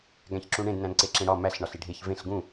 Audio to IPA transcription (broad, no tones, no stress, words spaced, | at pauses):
ɡæ̃çǁũɳẽd næ̃nǀeǁẽɽɒ mæɬ ɳɒɬiɖʱeç vẽɬ ɡũ